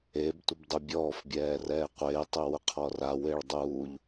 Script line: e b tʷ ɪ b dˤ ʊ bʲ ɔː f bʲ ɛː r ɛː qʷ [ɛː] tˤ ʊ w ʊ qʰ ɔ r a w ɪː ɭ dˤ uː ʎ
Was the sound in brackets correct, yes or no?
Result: no